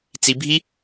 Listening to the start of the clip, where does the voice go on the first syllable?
high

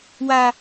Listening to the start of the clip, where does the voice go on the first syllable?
high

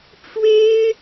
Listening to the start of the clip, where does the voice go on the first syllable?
high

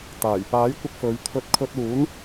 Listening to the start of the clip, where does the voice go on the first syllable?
low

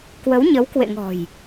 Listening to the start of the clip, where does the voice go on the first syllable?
rising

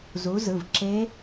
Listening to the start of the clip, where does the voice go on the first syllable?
rising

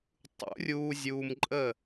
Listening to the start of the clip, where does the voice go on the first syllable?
rising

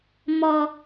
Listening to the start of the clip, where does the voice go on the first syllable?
high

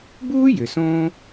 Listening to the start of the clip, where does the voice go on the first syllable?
high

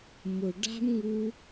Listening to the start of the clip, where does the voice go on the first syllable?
low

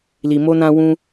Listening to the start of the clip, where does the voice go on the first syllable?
low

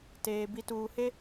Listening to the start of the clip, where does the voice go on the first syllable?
low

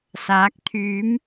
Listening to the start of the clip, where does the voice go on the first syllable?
rising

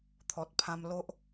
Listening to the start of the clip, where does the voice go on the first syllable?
low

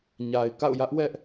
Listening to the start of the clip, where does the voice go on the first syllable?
low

